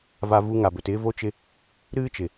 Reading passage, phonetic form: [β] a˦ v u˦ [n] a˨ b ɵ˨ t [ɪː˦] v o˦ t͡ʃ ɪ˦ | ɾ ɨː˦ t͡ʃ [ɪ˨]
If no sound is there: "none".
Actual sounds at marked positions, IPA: v, ŋ, ɪː˦, ɪ˨

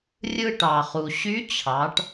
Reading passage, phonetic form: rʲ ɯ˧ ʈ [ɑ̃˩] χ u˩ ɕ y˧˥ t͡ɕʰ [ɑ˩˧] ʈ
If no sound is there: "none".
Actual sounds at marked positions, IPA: ɑ˩, ɑ˩˧

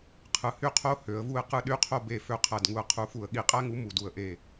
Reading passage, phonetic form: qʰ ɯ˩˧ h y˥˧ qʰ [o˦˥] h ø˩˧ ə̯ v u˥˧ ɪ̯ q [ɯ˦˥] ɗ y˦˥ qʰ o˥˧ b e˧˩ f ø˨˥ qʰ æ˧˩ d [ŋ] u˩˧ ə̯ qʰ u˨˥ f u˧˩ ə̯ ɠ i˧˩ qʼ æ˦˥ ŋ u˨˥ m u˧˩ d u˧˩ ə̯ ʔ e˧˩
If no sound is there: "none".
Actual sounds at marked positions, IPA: o˦˥, ɯ˦˥, ŋ

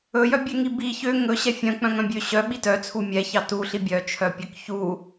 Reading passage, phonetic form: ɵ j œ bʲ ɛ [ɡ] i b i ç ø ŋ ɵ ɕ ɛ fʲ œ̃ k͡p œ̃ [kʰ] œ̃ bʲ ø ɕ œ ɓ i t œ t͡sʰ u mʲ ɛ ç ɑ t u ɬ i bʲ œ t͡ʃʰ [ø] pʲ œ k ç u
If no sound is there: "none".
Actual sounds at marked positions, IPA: ŋ, ŋ, œ

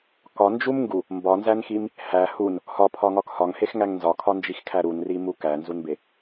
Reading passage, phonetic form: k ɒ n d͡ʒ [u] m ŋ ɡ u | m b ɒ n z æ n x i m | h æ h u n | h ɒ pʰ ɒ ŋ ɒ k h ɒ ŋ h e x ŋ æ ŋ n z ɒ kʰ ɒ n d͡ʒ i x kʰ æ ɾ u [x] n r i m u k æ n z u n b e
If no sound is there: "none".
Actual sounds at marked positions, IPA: u, none

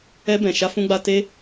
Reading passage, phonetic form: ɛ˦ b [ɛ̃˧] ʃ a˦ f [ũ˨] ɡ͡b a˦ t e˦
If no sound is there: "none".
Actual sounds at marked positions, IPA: ɛ̃˧, ũ˦

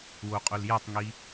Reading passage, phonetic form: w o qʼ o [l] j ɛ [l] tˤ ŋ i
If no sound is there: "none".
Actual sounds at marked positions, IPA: l, none

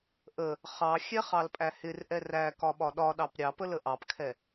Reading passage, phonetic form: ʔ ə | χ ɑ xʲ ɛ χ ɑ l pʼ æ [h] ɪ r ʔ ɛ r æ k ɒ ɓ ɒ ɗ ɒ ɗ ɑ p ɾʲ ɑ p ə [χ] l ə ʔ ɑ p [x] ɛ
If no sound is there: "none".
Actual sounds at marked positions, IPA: h, none, kʰ

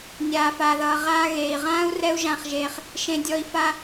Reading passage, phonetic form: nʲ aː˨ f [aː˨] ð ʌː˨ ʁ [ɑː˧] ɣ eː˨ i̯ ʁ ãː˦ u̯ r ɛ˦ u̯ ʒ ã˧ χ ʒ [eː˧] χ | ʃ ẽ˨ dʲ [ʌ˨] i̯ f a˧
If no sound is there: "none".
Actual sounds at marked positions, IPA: aː˨, aː˧, eː˧, ɔ˨

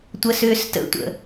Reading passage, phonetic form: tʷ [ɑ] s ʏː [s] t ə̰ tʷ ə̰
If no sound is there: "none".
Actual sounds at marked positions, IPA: ə, s

